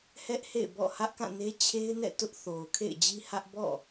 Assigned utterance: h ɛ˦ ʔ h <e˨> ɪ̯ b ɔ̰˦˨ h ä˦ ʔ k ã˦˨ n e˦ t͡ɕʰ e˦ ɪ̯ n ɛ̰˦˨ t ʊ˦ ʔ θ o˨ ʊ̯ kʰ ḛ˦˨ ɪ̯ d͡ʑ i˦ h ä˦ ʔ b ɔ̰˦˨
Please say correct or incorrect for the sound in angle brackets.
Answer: incorrect